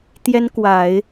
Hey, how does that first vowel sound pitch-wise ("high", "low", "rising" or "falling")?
high